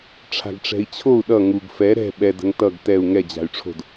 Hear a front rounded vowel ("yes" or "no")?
yes